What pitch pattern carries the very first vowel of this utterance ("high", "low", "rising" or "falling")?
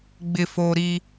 low